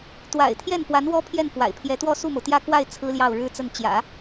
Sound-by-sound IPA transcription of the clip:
t̪wa̰˨˩ɪ̯ t̪ʰjɛ˥˩nfwa˧˥n wɔ˥pʰjɛ˥˩nfwa̰˨˩ɪ̯pʰjɛ˧˥ t̪wɔ˥˧su˥˩mo˩ʊ̯t̪jä˥˧ kwa˥˩ɪ̯ t͡sʰɹ̩˥ljɑ˥˩ʊ̯ɻɻ̩˥t͡sə˥˩n t͡ɕjä̰˨˩˦

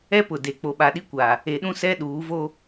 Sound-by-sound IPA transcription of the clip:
ɛ˦pʊ˨de˨ k͡po˨ɓa˨ɗi˦kʷa˨ | e˨ɗũ˦ sɛ˦ɗuː˨˦vo˦

